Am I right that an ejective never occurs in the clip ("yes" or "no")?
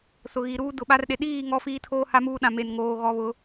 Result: yes